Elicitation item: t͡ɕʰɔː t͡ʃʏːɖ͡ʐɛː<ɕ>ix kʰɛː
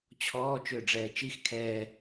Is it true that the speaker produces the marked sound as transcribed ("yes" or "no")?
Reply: no